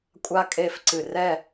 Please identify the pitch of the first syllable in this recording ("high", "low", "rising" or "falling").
high